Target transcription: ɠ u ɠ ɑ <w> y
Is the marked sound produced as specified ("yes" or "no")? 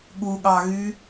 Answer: no